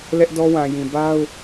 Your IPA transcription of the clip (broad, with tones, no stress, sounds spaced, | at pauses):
l ɛ˦ ʔ d ɔ˦ w ã˨ j ĩ˨ b a˦ ʊ̯